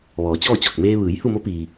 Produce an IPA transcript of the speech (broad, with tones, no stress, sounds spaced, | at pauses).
ʋ ɔː˩˧ t͡ɕ ɔː˥˨ t͡ɕ ɔː˧˩ k̚ m eː˧ ʋ ɯː˩˧ j h u˥˨ m o˧˥ p iː˩